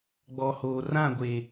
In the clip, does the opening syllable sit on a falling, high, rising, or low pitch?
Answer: low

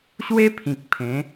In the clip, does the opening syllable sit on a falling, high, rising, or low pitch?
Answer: high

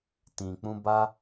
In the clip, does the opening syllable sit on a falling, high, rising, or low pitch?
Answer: low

